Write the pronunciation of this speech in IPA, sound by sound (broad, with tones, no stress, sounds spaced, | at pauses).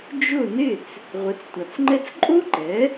d͡ʒ ʊ˥˩ n ɪ˥˩ t͡s | ʁʷ ɪ˩˥ t͡s tʷ a˩ t͡s ŋ͡ǃ ɛ˥ t͡s ǃʼ o˥ ǃ ɛ˩˥